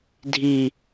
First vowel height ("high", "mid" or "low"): high